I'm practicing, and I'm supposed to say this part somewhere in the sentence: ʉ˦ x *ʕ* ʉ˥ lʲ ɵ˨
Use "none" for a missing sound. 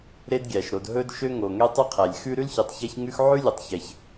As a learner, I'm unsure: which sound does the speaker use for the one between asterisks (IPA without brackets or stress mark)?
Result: ʕ